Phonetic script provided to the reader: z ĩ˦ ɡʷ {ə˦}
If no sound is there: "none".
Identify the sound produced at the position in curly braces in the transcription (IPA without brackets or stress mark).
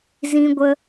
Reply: ə˦